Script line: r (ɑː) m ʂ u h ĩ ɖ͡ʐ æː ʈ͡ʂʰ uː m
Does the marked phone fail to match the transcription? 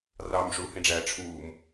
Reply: no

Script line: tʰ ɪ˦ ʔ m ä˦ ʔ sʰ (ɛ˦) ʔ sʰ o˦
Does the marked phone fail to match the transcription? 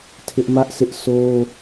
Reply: yes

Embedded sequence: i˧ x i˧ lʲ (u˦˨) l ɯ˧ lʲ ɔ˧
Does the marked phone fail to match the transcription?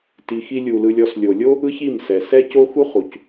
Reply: yes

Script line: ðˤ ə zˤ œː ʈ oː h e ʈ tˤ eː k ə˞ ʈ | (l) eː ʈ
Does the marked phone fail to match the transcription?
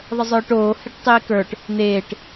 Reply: yes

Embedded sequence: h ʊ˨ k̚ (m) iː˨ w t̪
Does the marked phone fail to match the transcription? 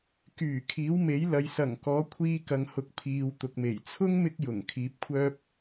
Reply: yes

